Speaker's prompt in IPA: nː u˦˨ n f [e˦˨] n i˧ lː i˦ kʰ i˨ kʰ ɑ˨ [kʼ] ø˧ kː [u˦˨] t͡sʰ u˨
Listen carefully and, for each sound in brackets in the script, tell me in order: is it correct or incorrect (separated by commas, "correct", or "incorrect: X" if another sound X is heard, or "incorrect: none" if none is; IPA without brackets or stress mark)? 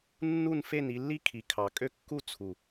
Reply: correct, correct, correct